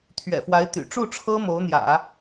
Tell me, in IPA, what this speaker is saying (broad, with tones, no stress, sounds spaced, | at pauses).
t̪ʰ ɥ ɛ̰˨˩ f w a˧˥ ɪ̯ t̪ y̰˨˩ ʈ͡ʂ u˥˩ ʈ͡ʂʰ ɤ˥ m o˧˥ ʊ̯ n̪ j ä̰˨˩˦